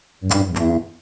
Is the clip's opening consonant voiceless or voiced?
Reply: voiced